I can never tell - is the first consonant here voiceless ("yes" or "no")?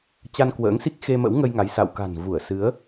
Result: yes